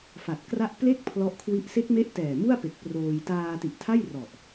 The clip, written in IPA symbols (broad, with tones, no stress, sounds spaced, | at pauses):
f a˨˩ t̚ k r a˥˩ ʔ p l e˥˩ k̚ pʰ l ɔ˦˥ ʔ kʰ w i˦˥ ʔ s e˦˥ k̚ m e˦˥ ʔ t ɛː˨˩ m u˥˩ a̯ p e˨˩ k̚ p r oː˧ j t aː˧ t i˨˩ ʔ tʰ a˥˩ j r ɔ˨˩ ʔ